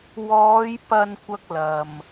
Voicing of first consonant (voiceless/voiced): voiced